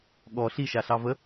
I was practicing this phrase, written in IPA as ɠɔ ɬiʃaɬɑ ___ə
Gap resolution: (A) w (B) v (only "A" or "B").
B